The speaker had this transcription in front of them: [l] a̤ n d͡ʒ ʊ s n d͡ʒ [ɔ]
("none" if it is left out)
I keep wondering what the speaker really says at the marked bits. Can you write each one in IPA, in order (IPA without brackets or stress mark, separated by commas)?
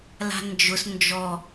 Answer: l, ɔ